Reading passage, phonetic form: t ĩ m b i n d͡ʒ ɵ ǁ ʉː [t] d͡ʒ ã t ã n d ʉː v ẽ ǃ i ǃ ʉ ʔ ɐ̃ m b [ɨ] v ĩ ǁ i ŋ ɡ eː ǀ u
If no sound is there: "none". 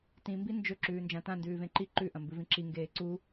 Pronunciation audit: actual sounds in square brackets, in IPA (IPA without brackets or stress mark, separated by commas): n, ɨ